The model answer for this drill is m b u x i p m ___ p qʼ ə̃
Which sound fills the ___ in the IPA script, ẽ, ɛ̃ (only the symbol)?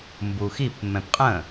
ɛ̃